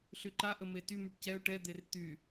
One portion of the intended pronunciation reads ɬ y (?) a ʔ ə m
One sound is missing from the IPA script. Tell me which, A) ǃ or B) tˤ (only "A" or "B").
A